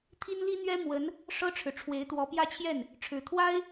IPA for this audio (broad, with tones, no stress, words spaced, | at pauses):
t̪ʰi˥nli˥n̪ɥɛ˥ mwə˧˥n | ʂɤ˥ʈ͡ʂʰɻ̩˨ ʈ͡ʂʰwe˧˥ɪ̯t̪wɔ˧˥pjä˥˧t͡ɕʰjɛ˥˩n | ʈ͡ʂʰɻ̩˨˩t̪ʰwa˥ɪ̯